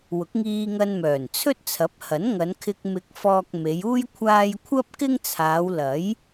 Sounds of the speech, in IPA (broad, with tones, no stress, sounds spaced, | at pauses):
w ʊ˨˥ k̚ ŋ iː˧ ŋ ɐ˧ n m œː˨˩ n t͡sʰ ɵ˥ t̚ t͡sʰ ɐ˨˥ p̚ h ɐ˨˥ n ŋ ɐ˨˧ n kʰ ɪ˧ k̚ m ɪ˨˥ k̚ f ɔː˨ k̚ m e˨˧ j uː˥ j kʷʰ aː˧ j kʷʰ ɐ˥ p̚ k ɪ˥ ŋ t͡sʰ aː˨˧ w l ɐ˨˥ j